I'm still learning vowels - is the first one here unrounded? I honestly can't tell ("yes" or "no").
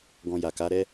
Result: no